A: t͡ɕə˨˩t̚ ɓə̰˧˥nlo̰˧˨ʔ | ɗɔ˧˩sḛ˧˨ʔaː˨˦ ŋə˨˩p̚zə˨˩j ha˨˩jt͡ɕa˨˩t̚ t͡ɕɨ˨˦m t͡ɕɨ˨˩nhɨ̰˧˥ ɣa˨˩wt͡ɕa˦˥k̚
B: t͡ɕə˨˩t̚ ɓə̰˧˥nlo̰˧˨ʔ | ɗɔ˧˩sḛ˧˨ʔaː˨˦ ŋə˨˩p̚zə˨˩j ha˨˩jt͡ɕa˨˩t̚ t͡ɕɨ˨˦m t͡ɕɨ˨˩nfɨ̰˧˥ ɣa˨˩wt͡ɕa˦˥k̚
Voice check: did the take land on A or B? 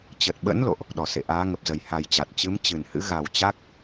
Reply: A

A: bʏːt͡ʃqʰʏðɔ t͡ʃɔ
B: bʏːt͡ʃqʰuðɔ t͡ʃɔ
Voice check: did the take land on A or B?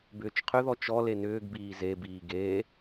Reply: A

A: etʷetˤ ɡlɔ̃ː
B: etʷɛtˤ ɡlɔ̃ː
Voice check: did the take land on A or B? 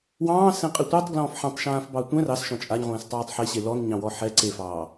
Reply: B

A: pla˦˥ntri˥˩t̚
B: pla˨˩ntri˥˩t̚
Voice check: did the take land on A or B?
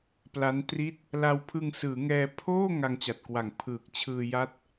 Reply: A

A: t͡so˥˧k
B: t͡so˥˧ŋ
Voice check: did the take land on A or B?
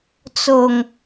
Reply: B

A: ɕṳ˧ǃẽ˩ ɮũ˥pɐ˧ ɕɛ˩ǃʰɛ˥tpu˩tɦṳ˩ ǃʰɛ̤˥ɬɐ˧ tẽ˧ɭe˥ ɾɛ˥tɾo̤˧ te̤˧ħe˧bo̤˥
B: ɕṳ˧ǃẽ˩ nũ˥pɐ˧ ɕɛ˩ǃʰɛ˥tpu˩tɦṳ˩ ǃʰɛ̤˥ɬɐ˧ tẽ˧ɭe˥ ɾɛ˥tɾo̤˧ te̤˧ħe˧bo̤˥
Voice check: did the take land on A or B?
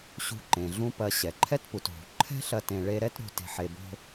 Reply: A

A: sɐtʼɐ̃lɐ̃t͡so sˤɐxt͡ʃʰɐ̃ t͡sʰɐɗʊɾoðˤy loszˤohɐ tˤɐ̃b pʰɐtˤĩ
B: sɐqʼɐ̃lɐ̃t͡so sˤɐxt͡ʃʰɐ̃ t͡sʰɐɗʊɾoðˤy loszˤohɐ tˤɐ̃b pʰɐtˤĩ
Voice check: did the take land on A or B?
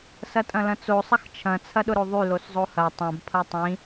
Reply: A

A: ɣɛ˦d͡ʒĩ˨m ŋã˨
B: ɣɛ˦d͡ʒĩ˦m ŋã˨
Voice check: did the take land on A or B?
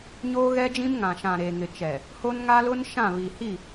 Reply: B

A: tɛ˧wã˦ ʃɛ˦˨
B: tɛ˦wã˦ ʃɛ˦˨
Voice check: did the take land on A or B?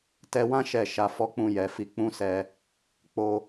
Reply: A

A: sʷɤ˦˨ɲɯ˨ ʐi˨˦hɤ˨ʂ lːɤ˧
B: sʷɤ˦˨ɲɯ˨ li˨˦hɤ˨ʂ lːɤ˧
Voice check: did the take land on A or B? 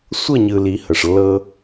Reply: B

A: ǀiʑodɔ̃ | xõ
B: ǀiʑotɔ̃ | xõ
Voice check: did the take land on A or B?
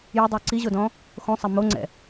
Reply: A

